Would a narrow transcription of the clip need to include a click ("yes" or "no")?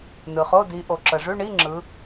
yes